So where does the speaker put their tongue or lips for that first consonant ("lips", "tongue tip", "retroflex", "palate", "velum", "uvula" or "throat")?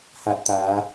throat